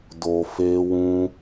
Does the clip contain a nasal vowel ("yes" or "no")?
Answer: yes